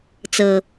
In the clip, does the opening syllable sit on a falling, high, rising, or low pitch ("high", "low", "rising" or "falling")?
low